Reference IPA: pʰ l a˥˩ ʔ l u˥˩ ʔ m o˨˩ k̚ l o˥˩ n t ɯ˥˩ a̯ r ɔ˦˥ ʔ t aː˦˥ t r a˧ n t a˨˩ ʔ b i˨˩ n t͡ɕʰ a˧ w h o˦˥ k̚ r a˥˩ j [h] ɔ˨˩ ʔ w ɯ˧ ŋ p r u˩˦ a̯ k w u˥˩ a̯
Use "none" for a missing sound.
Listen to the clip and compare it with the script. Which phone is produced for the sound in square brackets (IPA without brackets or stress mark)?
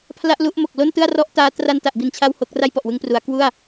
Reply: p